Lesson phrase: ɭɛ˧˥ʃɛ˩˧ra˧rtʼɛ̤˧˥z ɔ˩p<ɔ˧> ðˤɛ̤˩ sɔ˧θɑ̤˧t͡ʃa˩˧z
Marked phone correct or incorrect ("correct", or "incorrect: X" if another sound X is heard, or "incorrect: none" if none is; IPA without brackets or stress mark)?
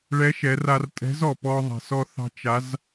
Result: correct